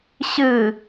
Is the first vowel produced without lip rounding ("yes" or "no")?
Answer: yes